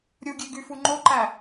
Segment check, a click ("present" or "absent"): present